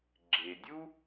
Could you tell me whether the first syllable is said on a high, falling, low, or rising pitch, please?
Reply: low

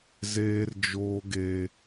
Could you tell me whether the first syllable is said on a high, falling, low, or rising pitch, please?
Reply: high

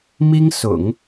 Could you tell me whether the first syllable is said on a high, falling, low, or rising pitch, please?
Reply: high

